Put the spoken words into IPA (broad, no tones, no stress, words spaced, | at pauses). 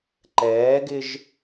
ǃɛːɡɪʒ